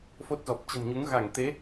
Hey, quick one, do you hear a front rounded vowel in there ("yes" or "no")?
no